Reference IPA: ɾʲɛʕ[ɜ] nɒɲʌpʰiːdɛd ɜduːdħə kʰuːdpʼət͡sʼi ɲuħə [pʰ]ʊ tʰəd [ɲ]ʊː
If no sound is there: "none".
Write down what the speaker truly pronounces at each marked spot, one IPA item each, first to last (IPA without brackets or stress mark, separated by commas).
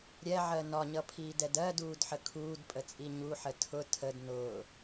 ɜ, tʰ, n